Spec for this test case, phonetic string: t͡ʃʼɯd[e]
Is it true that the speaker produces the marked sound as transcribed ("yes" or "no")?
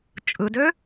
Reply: no